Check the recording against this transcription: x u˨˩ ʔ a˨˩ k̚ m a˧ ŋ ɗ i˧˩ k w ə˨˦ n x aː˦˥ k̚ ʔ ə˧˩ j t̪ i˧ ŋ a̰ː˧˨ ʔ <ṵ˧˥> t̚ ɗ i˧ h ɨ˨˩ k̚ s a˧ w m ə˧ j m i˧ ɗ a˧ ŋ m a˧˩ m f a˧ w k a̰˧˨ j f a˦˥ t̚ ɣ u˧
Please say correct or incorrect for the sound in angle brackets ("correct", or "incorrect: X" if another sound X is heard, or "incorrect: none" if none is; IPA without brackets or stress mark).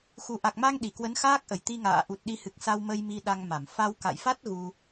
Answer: incorrect: u˨˩